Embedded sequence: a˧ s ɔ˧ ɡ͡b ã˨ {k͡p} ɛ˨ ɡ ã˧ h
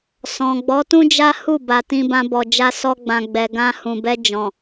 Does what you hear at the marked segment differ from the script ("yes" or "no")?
yes